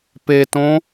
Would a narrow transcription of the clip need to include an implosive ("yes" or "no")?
no